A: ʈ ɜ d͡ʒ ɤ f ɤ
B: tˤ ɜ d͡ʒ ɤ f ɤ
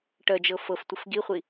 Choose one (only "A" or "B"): A